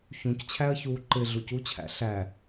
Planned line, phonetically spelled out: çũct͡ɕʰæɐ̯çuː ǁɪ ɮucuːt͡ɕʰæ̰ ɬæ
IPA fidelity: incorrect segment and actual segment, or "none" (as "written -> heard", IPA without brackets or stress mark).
ǁ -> ǃ